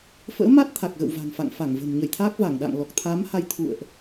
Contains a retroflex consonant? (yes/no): no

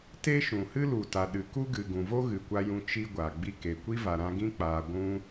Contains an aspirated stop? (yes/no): no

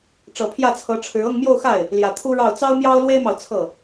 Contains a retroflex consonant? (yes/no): yes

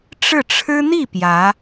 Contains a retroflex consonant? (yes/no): yes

